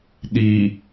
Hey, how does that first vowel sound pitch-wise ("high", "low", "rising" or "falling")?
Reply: low